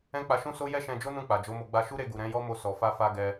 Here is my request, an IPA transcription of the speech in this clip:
ɛ̃˦ k͡p a˧ ʃ ũ˦ s o˦ j ɛ˦ ʃ ɛ̃˧ d͡ʒ o˦ n ũ˦˨ k͡p a˨ d͡ʒ o˨˦ m o˧ ɡ͡b a˧ ʃ u˦ ɾ e˧ ɡ u˨ ɾ ɛ̃˨˦ j ɔ˦ m o˧ s ɔ˨ f a˧ f a˧ ɡ ɛ˧

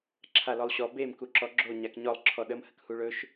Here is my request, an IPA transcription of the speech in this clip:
ǁʰ a l ɔ lˠ ɕ ɔ b e m k u ǁ ɔ ɡ͡ǁ o ɲ a k ɲ ɔ lˠ ǁʰ ɔ ɗ ə m h ə k h u ɭ ɵ ʃ

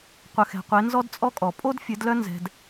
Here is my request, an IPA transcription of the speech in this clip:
qʷ ə˨ x ɛ̤˨ qʷ e˨˦ n z ɔ˦ d t͡sʼ ɔ˦ kʼ ɔ˨ pʼ o˦ d fʲ ɘ˨˦ d l œ˦ n z ɛ̤˧ d

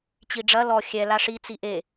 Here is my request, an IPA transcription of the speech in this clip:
t͡ɕ i ɖ͡ʐ ɐ l ɔ xʲ ɛ l a ʂ i t͡s i ʔ e

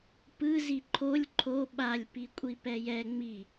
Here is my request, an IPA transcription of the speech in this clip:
p ɯ z i ǃʰ o lʲ ǃʰ o ɓ a lʲ p i kʷʼ i p ɛ j ɛ ŋ͡m i

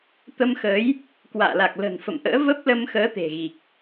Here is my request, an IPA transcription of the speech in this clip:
t̪ ə˧ m x əː˨˦ j | k w a̰ː˧˨ l a˨˩ k̚ l ə̤˨˩ n f ə̰˧˨ m ʔ ə̰ː˧˥ v ə˦˥ p̚ l ə˧ m x əː˨˦ t̪ e̤˨˩ ɣ i˨˩ k̚

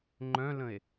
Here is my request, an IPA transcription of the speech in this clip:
ŋ͡ǃ œ̃ l ə̃ e̯

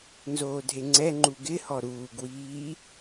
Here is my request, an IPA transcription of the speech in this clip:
n z oː dʱ e ŋ͡ǀ ɛ ŋ͡ǃ u ɡ ɪ h ɔ ɾ uː ɡ w iː

